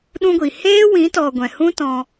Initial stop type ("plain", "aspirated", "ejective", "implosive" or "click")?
implosive